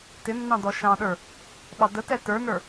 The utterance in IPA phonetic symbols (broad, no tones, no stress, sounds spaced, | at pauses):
t ɪ nː ɑ̃ d ɔ ʃ ɑ̃ ɗ ə˞ | ɓ ɑ d ə t ɛ t ə˞ n ə˞